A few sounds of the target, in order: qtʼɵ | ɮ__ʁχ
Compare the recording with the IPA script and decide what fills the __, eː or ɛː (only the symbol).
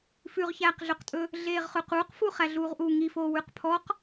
eː